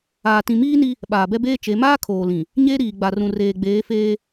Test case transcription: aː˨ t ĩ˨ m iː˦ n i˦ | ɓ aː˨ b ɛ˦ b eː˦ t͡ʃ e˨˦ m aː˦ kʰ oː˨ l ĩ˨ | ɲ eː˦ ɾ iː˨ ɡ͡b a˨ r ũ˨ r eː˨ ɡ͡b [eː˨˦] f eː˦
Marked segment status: correct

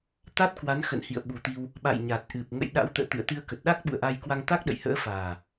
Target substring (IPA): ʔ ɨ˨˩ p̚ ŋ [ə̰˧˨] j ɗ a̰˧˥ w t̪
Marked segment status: correct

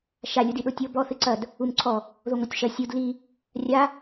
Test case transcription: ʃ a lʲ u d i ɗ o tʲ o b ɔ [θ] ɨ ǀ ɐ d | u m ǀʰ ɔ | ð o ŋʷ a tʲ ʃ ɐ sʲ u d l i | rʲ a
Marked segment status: correct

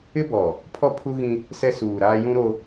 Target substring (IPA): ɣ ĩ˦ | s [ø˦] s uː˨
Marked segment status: incorrect: ɛ˦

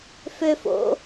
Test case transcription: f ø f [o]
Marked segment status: incorrect: o̰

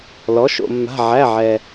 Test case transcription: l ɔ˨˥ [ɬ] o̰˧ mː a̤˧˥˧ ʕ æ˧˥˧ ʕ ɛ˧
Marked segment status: incorrect: ʃ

